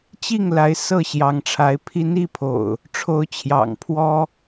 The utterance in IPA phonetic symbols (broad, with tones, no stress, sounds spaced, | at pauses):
t͡ɕ i˥˨ ŋ l a˨˦ ɪ̯ s ɤ˥˨ ɕ j ɑ˨˦ ŋ ʈ͡ʂʰ a˨˦ ɪ̯ pʰ i˨˦ n i˥˨ pʰ o̰˨˩ ʊ̯ | ʈ͡ʂʰ o˨˦ ʊ̯ t͡ɕʰ j ɑ̰˨˩ ŋ pʰ w ɔ˦